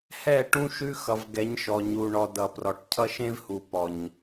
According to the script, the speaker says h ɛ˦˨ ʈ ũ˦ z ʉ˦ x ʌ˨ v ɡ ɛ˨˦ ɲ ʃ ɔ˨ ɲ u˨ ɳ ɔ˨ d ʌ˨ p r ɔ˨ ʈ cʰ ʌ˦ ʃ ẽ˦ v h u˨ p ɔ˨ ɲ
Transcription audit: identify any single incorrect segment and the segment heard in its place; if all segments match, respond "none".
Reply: z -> ʃ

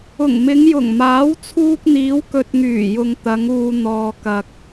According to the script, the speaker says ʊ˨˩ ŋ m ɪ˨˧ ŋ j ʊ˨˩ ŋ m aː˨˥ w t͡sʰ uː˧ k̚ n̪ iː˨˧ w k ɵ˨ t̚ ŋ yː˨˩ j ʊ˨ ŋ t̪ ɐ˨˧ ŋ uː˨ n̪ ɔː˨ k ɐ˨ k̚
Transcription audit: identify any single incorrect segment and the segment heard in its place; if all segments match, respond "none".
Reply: none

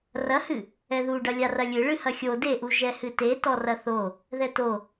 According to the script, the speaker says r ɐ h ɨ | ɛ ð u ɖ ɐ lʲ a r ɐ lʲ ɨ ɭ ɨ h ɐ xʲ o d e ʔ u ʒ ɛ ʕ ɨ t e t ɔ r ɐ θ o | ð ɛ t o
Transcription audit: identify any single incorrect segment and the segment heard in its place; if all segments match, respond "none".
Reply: ʕ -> h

